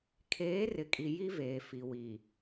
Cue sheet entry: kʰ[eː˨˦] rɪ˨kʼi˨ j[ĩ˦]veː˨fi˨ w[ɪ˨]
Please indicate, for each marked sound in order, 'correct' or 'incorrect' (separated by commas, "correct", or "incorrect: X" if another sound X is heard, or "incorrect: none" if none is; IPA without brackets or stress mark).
correct, incorrect: i˦, incorrect: i˨